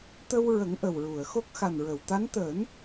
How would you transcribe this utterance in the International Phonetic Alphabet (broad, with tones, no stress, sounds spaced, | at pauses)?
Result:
t̪ ə˧ w ɹ ə˨˩˦ ŋ ʔ ə˨˩ w ɹ u˨˩˨ ə̯ x o˦˥ k̚ x a˨˩ n ɹ ə˨˩˨ w t̪ a˧˥ n t̪ əː˨˩˦ n